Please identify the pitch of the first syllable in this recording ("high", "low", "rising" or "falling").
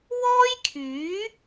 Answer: high